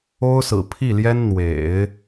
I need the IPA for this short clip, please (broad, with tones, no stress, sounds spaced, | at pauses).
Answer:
o˥ ʊ̯ s ɹ̩˨˩ pʰ i˥˩ l j ɛ˥ n n̪ w ḛ˨˩˦ ɪ̯